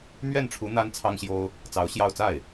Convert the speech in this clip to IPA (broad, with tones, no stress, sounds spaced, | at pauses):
m ɥ ɛ˥˩ n ʈ͡ʂʰ u˧˥ n̪ a˥ n t͡sʰ ɑ˥ ŋ ɕ j o˥ ʊ̯ | t͡s ɑ˧˥ ʊ̯ ɕ j ɑ˥˧ ʊ̯ t͡s a˥˩ ɪ̯